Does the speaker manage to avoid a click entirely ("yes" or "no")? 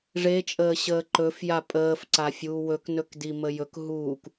no